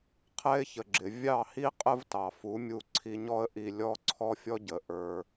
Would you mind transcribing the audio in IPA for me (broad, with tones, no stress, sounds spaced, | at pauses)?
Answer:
qʰ ɛ˥ ɪ̯ ç ə˩ ɡ͡ǁ ɪ˩ vʲ ɑ˥˩ h i˥ qʼ ə˥ v t ɑ˩ f u˩˥ mʲ u˧ ǀʰ i˧ ɲ ɔ˥ ə̯ ʔ i˧ lʲ ɔ˥ ǀʰ ɔ˥ fʲ ɔ˥ ɟ ə˩˥ ʔ ə˞˧